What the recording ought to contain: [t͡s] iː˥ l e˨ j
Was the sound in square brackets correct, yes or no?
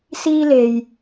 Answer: no